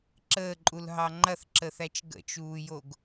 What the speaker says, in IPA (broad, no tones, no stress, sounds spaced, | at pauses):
ǁ əː ǃʼ u l ɦ ɑ ŋ͡ǃ ɐ θ ǁ ə θ æ t͡ʃ ɡ ə̰ t͡ʃ uː j o ɡ